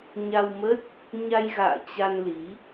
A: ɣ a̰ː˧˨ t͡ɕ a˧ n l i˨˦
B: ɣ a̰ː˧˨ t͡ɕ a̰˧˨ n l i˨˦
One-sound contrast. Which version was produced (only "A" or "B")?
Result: A